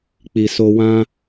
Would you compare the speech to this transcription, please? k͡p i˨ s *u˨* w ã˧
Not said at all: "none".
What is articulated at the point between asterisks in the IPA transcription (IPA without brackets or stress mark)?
o˨